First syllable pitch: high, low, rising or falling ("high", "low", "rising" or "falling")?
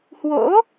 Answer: rising